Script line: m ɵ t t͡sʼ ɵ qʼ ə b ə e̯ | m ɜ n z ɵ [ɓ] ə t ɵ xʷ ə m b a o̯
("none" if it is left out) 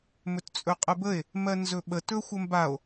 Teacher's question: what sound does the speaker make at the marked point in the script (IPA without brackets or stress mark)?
ɓ